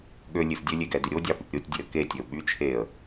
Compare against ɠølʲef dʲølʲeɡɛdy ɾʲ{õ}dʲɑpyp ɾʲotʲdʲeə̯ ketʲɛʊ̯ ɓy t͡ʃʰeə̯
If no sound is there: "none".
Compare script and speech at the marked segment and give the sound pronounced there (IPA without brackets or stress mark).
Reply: o